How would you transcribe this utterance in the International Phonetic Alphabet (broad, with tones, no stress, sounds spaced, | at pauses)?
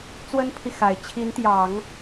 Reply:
t͡s w ə˥ n pʰ i˨ x a˨˩ ɪ̯ t͡ɕʰ i˧˥ n t̪ j ɑ˨˩˦ ŋ